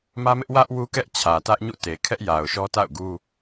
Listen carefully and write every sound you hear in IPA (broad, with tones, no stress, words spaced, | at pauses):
mä˦mɪ˦ʔwä˦ʔ wu˦kɛ˦ʔ t͡ɕʰä˨tä˦ʔ ɲṵ˦˨te˨kʰɛ˦ʔja˨ʊ̯ ʃɔ˦ta̰˦˨ʊ̯ɡu˦